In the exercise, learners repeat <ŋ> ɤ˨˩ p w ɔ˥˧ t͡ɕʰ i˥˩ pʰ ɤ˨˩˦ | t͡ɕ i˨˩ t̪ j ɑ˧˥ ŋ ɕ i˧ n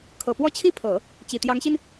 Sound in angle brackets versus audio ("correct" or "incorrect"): incorrect